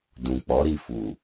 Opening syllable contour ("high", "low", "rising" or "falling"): low